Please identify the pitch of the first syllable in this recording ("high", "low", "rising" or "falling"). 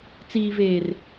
low